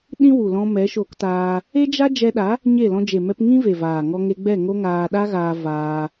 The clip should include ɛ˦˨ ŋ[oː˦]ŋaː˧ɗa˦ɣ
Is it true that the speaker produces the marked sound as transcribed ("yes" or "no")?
no